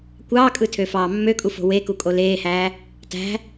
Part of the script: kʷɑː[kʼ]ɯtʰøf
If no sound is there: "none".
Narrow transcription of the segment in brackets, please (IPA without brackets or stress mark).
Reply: kʼ